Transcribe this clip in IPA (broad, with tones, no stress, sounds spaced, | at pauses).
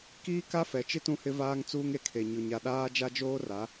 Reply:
k iː˦ k a˦ f ɛ˨ t͡ʃ ɪ˦ t ũ˦ h ɪ˦ v aː˦ ŋ t͡s uː˦ ŋ e˨ kʰ e˨ ɲ ʊ˨ ɲ a˨ ɗ aː˦ d͡ʒ a˦ d͡ʒ oː˦ r a˨˦